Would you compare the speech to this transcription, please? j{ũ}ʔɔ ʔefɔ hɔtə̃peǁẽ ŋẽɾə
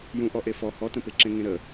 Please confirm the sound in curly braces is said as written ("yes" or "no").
yes